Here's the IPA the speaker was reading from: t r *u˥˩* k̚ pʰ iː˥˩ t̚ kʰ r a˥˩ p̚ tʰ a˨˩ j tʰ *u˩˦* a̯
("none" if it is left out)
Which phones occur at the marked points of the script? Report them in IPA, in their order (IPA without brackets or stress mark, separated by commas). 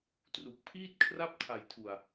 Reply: u˨˩, u˨˩